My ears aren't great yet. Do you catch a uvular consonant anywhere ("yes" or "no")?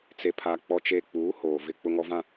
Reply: no